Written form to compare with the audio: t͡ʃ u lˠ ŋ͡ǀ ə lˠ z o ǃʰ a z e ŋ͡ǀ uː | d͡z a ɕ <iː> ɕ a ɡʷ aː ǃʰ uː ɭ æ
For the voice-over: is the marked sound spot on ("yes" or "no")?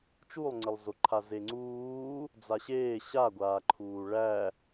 no